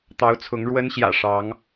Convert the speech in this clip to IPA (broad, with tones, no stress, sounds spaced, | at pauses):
t̪ ɑ˨˦ ʊ̯ t͡sʰ ʊ˨˦ ŋ ɻ w ə˨˦ n ɕ j ä̰˨˩ ʂ ɑ˨˦ ŋ